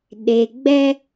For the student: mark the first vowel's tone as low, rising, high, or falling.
low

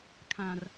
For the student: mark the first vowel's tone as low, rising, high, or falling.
low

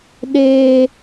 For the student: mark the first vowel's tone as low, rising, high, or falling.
high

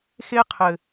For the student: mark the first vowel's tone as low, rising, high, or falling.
high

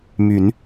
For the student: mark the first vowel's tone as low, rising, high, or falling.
rising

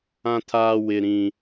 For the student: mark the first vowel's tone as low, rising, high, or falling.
high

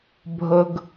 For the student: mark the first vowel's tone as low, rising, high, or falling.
high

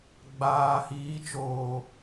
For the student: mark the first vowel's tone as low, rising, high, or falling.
low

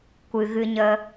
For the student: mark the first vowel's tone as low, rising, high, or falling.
low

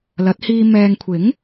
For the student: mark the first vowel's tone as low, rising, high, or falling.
rising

